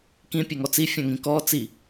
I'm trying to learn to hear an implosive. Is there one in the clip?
no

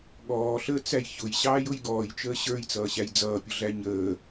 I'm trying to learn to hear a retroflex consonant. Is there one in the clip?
no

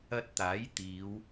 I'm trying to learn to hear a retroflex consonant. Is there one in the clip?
no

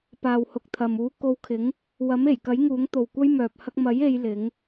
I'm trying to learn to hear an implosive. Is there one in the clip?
no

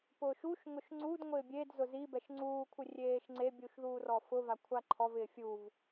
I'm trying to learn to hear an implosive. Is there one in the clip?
no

